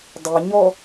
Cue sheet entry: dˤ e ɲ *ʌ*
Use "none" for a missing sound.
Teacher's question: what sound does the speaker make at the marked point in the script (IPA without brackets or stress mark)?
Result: ɔ